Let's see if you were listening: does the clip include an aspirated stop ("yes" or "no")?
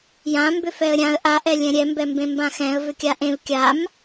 no